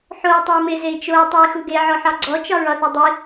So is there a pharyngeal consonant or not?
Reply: yes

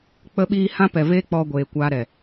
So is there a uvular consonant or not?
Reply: no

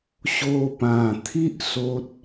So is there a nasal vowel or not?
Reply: yes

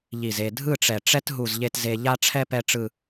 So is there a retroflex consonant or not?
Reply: yes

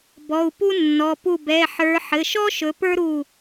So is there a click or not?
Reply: no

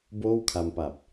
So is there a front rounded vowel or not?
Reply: no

